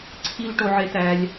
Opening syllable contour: high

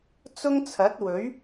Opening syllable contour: high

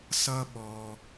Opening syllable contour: high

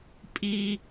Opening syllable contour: low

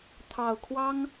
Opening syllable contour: low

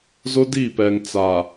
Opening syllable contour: high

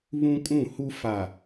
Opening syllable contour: high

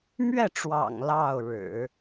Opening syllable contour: falling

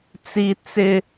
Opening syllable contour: high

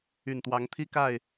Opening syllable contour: low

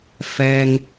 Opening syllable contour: low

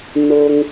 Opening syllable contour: low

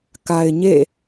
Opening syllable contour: low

